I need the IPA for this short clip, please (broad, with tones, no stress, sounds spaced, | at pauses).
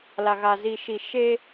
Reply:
l a˨ ɣ a˨ z i˨ ʃ i˨ ʃ e˦